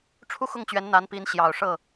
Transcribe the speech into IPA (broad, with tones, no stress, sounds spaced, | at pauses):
ʈ͡ʂʰ u˥ x ʊ˥˩ ŋ t͡ɕ ɥ ɛ˧˥ n n̪ a˧˥ n p i˧˥ n ɕ j ɑ˨˩ ʊ̯ ʂ ɤ˥˩